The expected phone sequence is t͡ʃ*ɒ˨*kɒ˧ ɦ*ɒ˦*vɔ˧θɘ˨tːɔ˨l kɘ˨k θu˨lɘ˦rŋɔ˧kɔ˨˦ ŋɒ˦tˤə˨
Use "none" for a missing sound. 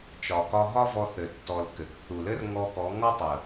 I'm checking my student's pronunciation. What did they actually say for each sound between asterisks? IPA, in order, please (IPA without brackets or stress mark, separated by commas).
ɒ˨, ɒ˦